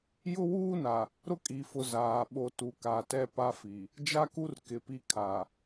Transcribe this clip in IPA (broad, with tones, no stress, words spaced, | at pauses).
jʊ˦wuː˦na˨ | ɾʊ˦kʼi˨fʊ˨ zaː˨ɓo˦ tu˨ka˨tɛ˦ pa˦fi˨ | d͡ʒa˦ku˦r kɪ˨pi˦ kʰa˨